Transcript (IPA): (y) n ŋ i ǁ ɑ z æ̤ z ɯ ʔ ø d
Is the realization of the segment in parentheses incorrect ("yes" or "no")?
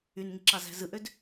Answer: no